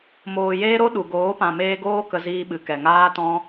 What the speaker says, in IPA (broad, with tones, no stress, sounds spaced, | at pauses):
m oː˨ j eː˦ ɾ o˦ ɗ u˨ ɡ oː˨˦ p ã˨ m eː˧ ɡ oː˦ k ə˧ z iː˧ ɓ ɨ˨ k ɛ˨ ŋ aː˦ t ɔ̃˦